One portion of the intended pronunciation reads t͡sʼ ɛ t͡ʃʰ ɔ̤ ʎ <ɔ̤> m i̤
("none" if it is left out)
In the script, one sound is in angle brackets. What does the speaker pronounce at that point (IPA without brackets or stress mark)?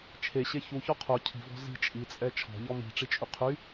ɔ